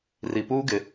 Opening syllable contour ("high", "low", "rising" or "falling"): low